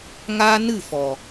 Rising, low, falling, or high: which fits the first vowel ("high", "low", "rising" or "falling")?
high